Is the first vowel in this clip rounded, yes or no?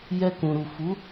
no